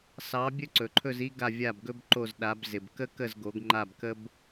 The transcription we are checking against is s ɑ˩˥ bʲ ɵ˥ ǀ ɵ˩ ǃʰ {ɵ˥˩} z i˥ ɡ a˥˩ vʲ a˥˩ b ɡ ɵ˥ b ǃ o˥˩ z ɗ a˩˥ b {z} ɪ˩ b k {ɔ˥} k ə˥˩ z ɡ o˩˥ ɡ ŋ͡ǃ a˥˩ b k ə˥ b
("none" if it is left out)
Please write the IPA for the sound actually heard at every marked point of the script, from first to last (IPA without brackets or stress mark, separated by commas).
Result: ɵ˥˩, z, ə˥